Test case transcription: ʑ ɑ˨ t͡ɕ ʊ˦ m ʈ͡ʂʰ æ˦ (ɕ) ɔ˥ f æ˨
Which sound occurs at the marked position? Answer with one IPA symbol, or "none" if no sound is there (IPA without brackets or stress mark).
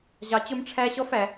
ɕ